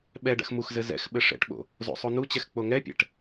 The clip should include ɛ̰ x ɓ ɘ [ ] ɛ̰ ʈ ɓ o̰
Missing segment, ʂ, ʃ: ʂ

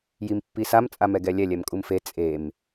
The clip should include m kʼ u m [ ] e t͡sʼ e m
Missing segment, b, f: f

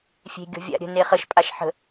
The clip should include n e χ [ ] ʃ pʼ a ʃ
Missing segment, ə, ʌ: ə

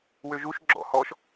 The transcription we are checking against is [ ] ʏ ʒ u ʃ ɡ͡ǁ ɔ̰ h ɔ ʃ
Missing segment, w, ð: w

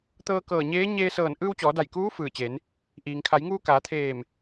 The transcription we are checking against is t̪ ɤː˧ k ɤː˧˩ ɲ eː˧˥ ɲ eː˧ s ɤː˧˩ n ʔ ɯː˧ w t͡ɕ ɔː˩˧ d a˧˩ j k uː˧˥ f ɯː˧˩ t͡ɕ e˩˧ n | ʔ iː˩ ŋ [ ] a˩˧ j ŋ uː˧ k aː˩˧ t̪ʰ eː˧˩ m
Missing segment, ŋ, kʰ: kʰ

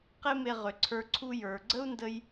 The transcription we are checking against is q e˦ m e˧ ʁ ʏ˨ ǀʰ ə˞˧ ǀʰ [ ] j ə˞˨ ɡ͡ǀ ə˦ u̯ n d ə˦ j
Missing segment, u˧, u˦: u˧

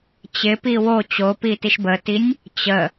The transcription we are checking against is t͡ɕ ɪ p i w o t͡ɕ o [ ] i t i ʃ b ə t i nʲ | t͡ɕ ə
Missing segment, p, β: p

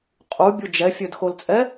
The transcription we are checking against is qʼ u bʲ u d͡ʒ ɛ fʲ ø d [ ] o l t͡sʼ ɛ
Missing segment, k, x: x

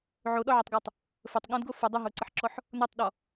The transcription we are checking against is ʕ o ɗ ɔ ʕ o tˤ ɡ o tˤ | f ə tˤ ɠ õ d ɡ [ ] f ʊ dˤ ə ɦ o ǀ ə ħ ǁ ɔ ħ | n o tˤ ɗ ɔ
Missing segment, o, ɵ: o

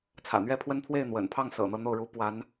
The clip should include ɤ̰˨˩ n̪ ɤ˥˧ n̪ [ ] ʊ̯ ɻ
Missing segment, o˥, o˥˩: o˥˩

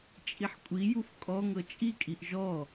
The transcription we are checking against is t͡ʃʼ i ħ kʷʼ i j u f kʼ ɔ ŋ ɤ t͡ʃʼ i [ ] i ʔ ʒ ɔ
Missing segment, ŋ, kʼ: kʼ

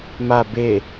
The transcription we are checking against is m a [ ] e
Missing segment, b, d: b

